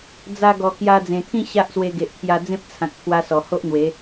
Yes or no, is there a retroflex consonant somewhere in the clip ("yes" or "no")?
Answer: no